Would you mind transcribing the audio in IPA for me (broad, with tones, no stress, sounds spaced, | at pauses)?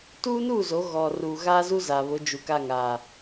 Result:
t uː˦ n uː˦˨ z o˨˦ ɣ ɔ˨ r uː˨ ɣ aː˦ z u˦ z a˨ β ʊ˨˦ d͡ʒ u˨ k a˦˨ ŋ aː˨